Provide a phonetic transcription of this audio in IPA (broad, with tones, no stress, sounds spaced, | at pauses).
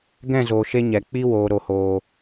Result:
ɡ ɛ̃˦˨ z oː˨ ʃ e˧ ɲ ɛ˨ k͡p i˧ w oː˨ ɾ o˨ h oː˨